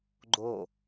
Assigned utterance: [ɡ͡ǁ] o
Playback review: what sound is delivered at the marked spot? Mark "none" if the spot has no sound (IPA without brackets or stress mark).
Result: ɡ͡ǃ